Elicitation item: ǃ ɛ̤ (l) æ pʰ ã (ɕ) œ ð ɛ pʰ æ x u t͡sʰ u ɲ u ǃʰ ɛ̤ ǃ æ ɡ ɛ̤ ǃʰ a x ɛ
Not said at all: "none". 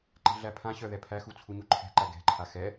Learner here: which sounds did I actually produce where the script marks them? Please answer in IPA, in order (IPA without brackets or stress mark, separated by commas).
ɮ, ɕ